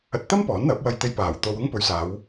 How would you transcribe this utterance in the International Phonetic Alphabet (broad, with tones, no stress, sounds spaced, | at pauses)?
ɐ˧ t̚ t̪ ɐ˥ m p ɔː˨˥ n n̪ ɐ˨˥ p̚ w ɐ˧ j t̪ e˧ j p aː˨˩ w t̪ o˧ w ʊ˥ ŋ p ɵ˨˧ ɥ s aː˨˧ w